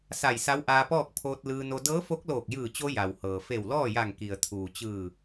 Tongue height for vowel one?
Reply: low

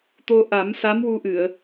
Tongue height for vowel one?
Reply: mid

